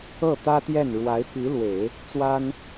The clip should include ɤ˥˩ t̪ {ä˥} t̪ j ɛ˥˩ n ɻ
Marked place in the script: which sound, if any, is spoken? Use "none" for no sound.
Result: ä˥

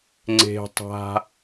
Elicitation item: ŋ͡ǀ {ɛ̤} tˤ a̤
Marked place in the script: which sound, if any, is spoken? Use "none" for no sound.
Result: e̤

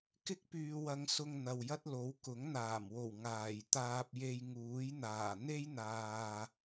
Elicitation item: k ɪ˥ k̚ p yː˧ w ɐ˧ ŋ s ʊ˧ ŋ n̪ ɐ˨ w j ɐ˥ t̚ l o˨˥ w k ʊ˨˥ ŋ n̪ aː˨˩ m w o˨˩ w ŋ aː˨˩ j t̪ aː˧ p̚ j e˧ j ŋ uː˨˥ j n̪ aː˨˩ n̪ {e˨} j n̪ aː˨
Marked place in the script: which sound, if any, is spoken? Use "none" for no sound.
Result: e˥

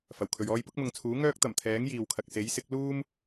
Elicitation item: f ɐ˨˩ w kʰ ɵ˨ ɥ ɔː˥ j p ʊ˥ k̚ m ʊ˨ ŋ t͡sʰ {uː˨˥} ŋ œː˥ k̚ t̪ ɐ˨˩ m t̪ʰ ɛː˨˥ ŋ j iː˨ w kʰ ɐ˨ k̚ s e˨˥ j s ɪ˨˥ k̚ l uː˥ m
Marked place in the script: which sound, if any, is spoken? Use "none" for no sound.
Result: uː˨˥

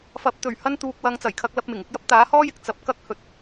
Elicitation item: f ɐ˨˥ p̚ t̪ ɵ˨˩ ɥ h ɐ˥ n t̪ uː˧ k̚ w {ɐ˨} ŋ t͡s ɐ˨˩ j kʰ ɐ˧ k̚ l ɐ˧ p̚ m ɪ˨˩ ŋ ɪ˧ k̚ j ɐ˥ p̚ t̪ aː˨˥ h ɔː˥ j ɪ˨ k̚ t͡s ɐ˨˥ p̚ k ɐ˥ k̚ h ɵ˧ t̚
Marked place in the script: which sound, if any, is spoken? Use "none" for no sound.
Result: ɐ˧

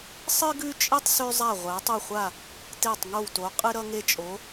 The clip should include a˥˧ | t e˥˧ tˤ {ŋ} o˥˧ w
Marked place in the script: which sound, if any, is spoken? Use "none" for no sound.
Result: ŋ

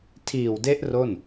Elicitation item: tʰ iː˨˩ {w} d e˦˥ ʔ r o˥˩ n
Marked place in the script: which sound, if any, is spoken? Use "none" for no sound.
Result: w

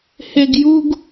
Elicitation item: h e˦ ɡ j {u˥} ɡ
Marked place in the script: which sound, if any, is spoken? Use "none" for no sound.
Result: u˥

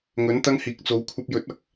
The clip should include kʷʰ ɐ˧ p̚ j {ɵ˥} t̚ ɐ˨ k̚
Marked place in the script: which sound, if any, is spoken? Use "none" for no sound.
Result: ɵ˨˥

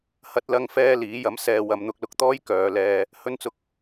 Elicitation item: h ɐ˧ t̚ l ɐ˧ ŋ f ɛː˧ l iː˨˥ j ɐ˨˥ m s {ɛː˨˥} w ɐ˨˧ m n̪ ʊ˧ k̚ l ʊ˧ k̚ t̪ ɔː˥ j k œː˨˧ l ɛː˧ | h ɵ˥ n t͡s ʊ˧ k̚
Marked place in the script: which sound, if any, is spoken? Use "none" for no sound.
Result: ɛː˨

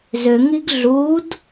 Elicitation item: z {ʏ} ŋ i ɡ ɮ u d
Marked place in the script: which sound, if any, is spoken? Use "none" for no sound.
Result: ʏ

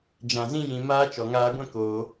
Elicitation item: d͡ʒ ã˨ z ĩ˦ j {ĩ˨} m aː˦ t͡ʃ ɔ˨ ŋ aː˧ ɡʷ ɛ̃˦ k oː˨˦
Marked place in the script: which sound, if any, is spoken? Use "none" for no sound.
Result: ĩ˨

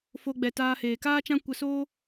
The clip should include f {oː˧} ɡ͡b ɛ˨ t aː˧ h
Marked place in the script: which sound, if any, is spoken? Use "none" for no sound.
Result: o˧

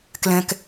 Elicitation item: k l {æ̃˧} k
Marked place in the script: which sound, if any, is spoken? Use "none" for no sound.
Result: ɛ̃˧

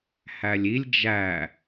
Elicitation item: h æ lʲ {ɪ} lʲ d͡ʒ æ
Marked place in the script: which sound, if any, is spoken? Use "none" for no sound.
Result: i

